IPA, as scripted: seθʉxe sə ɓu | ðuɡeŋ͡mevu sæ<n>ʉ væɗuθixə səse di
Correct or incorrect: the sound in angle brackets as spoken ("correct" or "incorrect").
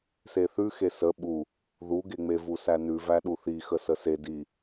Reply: correct